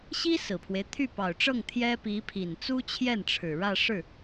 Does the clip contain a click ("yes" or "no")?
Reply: no